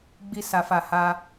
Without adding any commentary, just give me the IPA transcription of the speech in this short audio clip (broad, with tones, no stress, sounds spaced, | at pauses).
ɡ͡b i˧ s a˨ f a˨ h a˧